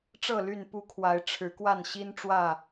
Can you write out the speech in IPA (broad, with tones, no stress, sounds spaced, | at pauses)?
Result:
ʈ͡ʂ ɤ˥˨ l y˥˨ n p u˦ kʰ w a˨˦ ɪ̯ ʈ͡ʂʰ ɻ̩˨˦ k w a˥˨ n ɕ i˦ n ʈ͡ʂ w ä˥˨